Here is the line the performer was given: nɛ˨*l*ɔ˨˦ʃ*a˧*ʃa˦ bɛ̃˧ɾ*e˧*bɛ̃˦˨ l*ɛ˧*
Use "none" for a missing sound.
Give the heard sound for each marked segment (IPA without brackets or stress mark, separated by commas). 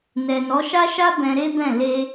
n, a˦, e˦, e˧